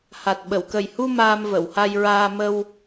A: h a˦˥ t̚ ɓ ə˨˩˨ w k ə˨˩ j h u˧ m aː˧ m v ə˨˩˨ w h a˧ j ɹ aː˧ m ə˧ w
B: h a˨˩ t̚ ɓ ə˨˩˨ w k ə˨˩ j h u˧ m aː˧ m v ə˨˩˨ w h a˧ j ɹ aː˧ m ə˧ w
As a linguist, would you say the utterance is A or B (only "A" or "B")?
B